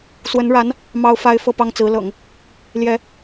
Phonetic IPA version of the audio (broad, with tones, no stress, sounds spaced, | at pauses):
s w ə˧˥ n ɻ a˧˥ n | m ɑ˥ ʊ̯ f a˥ ɪ̯ f ɤ˥˧ p ɑ˥˩ ŋ t͡s ɹ̩˧˥ l ɤ̰˨˩˦ ŋ | l j ɛ˧˥